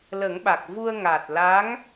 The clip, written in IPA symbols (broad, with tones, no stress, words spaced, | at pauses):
lə˨˩˦ŋɓa˨˩k̚vu˧ə̯ ŋa˨˩t̚la˧˥ŋ